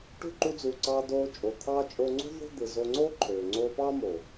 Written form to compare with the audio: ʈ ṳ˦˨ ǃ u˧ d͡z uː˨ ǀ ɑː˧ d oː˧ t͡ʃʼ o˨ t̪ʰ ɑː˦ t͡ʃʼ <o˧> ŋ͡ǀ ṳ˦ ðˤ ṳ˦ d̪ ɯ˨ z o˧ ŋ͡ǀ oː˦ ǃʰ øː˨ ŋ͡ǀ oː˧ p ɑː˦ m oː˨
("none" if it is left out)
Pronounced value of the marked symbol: o˧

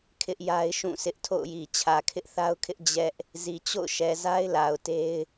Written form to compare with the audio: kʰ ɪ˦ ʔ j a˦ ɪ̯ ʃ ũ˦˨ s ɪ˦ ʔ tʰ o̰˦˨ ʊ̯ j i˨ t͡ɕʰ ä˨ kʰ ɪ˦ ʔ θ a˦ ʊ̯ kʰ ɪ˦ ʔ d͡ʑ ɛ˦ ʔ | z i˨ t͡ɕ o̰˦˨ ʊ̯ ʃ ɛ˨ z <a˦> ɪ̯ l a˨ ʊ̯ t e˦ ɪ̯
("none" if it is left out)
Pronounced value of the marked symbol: a˦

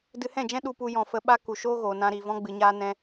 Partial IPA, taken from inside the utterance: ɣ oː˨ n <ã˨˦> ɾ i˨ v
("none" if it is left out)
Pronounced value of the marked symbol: ã˧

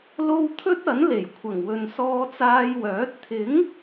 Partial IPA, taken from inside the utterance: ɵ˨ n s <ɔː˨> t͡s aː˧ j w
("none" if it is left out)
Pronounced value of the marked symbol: ɔː˧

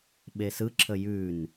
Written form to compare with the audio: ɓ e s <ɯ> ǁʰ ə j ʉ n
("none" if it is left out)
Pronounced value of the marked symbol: ɯ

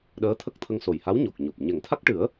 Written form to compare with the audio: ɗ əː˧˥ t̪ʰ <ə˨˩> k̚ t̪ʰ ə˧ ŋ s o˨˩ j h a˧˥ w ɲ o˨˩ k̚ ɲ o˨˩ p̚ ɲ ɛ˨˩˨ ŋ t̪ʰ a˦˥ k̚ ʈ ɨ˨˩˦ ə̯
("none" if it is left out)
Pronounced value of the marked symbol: ə˦˥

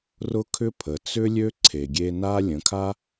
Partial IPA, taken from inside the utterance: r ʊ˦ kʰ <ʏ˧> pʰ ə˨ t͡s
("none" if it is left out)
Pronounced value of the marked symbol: ʏ˦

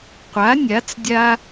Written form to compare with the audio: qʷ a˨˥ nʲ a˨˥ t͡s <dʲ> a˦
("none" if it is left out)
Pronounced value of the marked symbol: dʲ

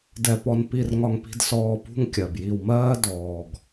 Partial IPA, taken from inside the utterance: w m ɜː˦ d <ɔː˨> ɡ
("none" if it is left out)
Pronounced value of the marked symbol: ɔː˨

